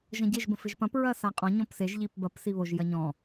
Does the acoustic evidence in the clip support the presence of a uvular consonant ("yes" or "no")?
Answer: yes